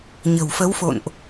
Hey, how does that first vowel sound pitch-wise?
low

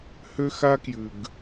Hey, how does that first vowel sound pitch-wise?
high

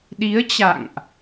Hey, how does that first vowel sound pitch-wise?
rising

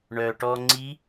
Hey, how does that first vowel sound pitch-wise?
low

